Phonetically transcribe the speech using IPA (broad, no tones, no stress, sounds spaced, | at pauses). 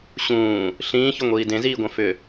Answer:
ɕ ũː | ɬ ĩː ç ʊ ŋʷ iː d ẽ z iː ɡʷ ɛ̃ f ʏ